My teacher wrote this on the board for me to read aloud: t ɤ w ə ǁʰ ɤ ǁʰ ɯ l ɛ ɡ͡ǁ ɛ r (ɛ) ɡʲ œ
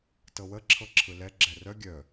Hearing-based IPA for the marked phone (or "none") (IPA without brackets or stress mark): œ